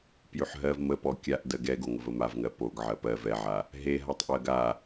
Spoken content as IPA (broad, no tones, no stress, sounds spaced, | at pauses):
p j ʉ ħ ɦ ɜ v m ə p ɔ kʲ a ʔ d ɜ ɡ ɛ ɡ o ŋ ə v ə m a v ŋ ɜ p o ɡ ʕ ɜ p ɜ v ɛ ʕ a | ɦ e ɦ a tˤ ʔ ɜ ɡ a